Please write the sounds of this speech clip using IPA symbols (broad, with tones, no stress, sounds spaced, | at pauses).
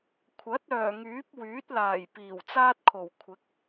kʷʰ ɐ˨˥ t̚ œː˨˩ ŋ yː˨˥ p̚ w yː˨˥ t̚ l aː˨˩ j p iː˨˩ w t͡s aː˥ t̚ kʰ o˨˩ w kʷʰ ɪ˨˥ k̚